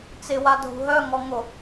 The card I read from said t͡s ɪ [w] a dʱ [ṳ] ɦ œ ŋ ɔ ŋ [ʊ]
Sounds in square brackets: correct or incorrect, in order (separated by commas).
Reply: correct, correct, correct